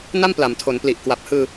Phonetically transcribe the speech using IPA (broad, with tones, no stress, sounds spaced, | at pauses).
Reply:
n a˥˩ m p l a˩˦ m tʰ o˩˦ n p l i˨˩ ʔ k w a˨˩ p̚ h ɯː˧